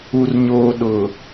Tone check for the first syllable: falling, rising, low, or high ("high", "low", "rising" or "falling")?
low